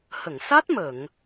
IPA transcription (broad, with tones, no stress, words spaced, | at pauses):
hə˨˩˨ŋsa˦˥t̚ mə˨˩˨ŋ